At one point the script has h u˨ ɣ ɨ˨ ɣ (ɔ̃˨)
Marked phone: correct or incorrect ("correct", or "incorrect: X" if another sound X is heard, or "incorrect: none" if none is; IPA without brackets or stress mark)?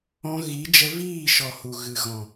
correct